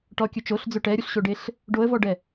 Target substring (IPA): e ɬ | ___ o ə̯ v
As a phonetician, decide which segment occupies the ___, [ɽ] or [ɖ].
ɖ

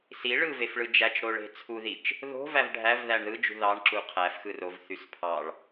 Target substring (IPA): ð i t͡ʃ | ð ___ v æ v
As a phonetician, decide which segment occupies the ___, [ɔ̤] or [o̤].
o̤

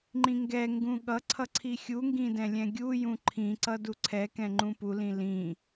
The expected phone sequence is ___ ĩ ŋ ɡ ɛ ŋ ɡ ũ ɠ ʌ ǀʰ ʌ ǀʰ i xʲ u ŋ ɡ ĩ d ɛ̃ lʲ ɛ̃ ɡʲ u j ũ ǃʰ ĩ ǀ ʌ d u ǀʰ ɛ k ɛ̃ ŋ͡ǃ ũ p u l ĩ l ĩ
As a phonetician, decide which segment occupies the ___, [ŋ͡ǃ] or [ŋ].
ŋ͡ǃ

